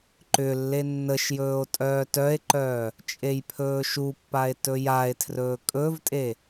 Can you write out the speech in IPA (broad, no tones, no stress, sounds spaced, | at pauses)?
ǃ ʏ lː e nː ə ʃ j ɵː o̯ tʼ œː t œ e̯ ǃ œː | t͡ʃʼ e j pʰ ɵː ʃ u pː a e̯ t ɵ j a e̯ tʰ r ɵː kʼ ɵ v tʼ e